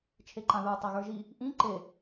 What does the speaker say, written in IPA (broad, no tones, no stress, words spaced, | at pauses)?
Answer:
t͡ʃʰeǃãðə˞ tˤaɣə˞ʒi | ʔĩ ǃe